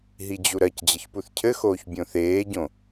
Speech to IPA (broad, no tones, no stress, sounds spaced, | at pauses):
ɦ i d͡ʑ u ɾ ɜ c d͡ʑ ə ç p u θ cʰ ɘ x oː ç bʲ õ θ eː ɟ õ